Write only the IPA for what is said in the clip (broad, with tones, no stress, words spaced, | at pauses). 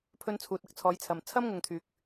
pʰɵ˧nt͡sʰuː˨t̚ɐ˧k̚ t͡sʰɔː˨˧jt͡sʰɐ˨m t͡sʰɐ˥mŋʊ˨ŋt̪ʰyː˨k̚